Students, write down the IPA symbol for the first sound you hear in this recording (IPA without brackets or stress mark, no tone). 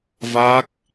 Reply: v